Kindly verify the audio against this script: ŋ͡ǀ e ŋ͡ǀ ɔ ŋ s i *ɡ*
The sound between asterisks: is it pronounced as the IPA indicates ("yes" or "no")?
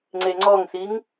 no